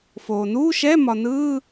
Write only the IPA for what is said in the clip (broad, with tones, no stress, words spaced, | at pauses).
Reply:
foː˩ nuː˧˥˧ʃɛ˧˥˧ mɒ˩nɯː˧˥˧